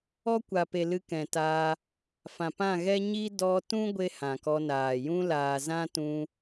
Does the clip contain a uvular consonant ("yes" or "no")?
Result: no